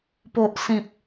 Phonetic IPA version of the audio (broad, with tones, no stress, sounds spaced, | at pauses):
p o˦ ʔ s ĩ˦ p̚